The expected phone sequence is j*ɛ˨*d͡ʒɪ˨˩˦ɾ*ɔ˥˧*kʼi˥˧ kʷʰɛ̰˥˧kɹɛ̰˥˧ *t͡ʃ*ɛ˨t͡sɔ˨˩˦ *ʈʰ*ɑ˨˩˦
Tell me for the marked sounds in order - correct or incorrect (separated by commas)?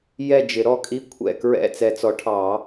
incorrect, correct, incorrect, correct